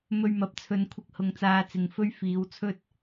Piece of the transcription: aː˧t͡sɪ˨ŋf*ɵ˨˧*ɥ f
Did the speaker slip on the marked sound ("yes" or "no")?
yes